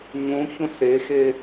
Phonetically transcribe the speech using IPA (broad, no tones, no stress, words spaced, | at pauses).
ɲũçũs exe